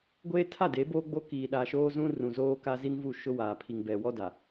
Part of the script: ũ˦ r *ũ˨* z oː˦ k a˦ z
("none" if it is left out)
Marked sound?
ũ˨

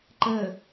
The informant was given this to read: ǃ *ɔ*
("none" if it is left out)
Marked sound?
ə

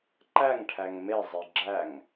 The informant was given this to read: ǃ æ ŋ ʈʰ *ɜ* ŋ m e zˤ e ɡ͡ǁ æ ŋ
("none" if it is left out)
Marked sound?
æ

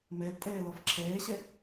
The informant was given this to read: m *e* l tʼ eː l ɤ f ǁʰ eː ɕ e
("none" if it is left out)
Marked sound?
e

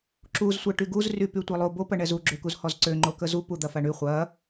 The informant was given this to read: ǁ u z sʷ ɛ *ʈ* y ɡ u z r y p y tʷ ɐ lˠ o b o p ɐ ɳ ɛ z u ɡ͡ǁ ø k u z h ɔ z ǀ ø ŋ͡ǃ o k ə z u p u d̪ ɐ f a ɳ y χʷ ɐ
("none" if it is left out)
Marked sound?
ʈ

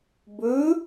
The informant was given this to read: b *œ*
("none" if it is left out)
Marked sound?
ɵ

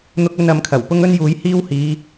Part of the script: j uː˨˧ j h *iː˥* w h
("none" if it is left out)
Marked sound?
iː˥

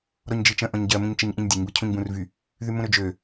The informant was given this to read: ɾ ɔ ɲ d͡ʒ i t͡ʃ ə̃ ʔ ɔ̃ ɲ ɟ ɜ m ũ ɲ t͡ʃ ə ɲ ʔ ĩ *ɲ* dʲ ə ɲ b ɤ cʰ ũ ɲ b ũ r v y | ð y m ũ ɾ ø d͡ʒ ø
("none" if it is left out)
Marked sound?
ɲ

